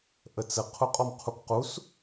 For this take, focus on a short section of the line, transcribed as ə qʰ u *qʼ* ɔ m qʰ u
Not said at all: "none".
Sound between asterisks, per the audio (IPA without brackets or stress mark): qʼ